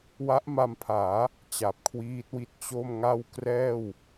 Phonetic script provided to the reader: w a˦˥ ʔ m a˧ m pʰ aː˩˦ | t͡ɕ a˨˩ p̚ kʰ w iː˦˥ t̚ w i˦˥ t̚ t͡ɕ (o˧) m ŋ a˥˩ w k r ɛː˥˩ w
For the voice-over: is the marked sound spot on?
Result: no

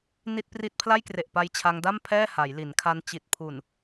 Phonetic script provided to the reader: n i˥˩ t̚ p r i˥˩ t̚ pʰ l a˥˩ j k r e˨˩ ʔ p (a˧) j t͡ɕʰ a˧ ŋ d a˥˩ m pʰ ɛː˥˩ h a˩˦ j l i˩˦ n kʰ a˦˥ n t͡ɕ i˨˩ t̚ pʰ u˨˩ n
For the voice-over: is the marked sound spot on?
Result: yes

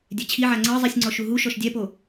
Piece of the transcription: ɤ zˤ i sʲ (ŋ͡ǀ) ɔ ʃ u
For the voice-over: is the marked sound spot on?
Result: yes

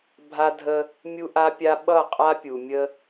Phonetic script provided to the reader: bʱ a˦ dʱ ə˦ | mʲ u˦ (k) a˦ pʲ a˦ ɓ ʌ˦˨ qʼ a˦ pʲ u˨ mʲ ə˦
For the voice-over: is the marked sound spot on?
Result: no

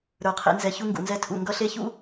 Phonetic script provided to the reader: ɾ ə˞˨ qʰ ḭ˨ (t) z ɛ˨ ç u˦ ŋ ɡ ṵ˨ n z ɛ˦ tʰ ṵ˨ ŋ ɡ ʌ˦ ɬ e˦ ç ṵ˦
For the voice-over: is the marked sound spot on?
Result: no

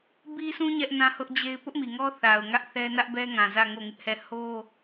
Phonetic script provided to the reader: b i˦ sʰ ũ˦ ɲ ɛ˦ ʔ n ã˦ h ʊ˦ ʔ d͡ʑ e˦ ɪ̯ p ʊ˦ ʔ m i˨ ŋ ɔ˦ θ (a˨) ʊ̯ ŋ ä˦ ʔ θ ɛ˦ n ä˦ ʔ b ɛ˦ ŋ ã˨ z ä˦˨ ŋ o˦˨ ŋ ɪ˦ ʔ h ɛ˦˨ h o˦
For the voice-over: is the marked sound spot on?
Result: yes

